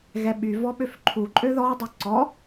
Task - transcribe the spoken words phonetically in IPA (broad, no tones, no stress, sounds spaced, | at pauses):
ɣ ɛ ɓ y v ɔ ɓ ø f ǃʰ u ǃʼ ø ð ɔ dˤ u ǀ ɔ